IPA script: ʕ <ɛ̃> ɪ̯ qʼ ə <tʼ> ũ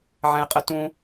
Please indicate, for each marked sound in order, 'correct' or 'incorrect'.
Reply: correct, incorrect: t

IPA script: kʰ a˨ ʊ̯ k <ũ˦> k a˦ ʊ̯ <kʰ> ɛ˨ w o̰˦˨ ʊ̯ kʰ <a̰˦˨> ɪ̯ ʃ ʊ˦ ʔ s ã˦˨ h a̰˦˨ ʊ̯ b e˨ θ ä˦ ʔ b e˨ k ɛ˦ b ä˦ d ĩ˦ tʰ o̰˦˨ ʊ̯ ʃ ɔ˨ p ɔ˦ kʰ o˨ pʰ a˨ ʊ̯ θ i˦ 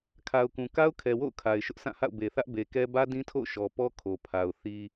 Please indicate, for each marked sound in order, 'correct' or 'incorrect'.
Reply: incorrect: ũ˨, correct, incorrect: a˨

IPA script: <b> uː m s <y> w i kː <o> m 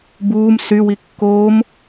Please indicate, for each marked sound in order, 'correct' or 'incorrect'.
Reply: correct, correct, incorrect: oː

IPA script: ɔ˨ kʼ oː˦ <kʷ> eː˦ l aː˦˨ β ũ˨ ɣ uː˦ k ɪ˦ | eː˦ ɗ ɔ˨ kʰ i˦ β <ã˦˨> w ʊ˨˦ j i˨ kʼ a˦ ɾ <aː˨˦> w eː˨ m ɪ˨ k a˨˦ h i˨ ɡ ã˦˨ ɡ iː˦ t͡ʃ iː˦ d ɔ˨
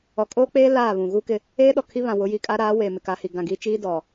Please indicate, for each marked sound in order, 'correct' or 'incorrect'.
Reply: incorrect: k͡p, incorrect: ã˨, correct

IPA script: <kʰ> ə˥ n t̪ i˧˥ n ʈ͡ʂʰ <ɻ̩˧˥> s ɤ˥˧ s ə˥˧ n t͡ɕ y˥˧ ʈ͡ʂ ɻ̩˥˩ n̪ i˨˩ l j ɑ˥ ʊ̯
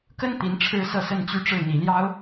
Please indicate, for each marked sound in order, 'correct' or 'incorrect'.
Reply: incorrect: k, incorrect: ɻ̩˥

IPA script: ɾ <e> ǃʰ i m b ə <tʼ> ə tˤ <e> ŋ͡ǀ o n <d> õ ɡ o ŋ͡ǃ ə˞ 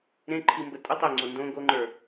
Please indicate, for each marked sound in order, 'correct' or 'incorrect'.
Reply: incorrect: ẽ, correct, correct, correct

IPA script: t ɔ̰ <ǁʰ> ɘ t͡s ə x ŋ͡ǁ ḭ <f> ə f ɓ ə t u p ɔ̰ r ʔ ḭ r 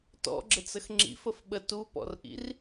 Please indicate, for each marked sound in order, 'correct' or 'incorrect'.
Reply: incorrect: ɡ͡ǁ, correct

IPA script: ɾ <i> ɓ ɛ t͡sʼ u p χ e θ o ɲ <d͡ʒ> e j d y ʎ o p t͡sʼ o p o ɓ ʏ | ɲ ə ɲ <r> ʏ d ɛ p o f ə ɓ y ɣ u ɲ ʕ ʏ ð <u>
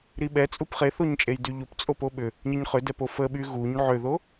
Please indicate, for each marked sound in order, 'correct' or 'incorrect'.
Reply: correct, incorrect: t͡ʃʼ, incorrect: χ, incorrect: o

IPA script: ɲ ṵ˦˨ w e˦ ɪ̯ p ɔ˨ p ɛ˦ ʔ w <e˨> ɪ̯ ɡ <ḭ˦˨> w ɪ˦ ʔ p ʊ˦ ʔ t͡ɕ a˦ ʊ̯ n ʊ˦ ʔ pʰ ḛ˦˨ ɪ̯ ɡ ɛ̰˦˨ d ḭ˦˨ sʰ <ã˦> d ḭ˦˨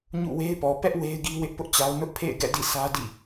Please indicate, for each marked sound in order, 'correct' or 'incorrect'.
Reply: incorrect: e˦, incorrect: i˦, incorrect: ä˦

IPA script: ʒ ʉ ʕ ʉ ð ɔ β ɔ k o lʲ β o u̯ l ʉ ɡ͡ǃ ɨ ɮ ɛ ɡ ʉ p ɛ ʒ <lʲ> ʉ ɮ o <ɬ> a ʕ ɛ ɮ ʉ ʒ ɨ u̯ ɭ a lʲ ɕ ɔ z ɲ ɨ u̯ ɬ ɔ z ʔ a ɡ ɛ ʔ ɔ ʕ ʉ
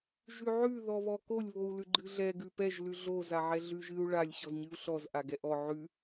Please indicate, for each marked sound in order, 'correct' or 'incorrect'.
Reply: incorrect: l, incorrect: z

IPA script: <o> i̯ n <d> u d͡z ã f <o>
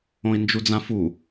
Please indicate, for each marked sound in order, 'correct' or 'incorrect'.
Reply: incorrect: õ, incorrect: d͡ʒ, incorrect: u

